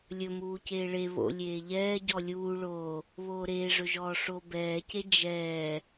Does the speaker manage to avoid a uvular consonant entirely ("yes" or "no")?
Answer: yes